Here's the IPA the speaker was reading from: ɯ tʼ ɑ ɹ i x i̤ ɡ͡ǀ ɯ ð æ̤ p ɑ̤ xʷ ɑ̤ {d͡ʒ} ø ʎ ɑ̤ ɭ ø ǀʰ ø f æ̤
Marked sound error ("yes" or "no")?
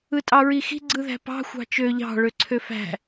yes